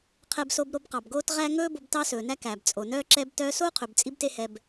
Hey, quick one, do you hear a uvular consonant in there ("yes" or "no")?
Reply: yes